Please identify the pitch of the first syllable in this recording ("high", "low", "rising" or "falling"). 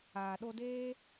low